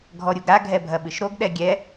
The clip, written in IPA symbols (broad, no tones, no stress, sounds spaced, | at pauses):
ɡʱ ɔ ɾʲ u ɡ ɾ a ɡʱ ɛ bʱ ɐ ɓ ɨ ʃ ɾ o ɡ ɗ ɛ ɡʲ ɛ